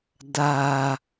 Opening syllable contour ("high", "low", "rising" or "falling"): low